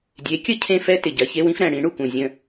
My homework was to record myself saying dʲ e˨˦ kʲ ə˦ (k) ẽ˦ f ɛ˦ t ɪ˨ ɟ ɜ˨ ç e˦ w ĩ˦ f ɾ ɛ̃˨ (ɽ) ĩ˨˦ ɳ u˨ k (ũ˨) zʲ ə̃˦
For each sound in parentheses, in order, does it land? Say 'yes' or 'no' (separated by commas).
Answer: no, yes, yes